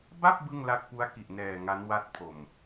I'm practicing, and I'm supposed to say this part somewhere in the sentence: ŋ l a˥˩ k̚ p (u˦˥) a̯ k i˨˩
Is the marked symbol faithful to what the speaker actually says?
yes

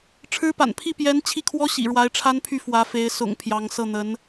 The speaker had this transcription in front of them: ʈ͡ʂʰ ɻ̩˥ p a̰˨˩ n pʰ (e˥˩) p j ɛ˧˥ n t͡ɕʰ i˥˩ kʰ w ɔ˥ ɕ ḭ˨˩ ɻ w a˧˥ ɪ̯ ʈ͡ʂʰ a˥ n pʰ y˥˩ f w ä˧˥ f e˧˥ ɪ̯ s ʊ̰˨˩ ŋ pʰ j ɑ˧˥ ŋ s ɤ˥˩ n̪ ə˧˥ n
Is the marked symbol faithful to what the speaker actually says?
no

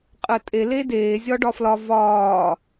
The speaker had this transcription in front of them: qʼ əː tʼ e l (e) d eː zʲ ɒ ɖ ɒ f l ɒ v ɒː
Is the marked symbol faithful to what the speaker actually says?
yes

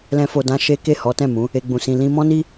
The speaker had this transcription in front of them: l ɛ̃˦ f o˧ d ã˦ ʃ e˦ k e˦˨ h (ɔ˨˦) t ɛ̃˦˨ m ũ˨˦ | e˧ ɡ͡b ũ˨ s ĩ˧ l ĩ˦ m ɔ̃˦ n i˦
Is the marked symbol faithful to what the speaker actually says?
yes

